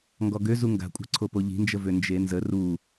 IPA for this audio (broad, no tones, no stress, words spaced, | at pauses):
ŋɡɔɡøzu ŋɡa̤kʷʼa̤ǀʰo poʎi̤nd͡ʒəvø nd͡ʒenzə ru